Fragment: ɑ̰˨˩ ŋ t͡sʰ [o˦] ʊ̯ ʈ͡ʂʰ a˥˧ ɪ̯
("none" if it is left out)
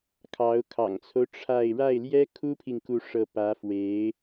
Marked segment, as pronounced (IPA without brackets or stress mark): o˦